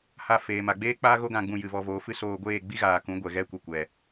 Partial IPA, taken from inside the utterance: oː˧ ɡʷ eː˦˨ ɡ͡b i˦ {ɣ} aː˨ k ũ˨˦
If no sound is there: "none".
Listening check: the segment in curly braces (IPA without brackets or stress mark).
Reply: ɣ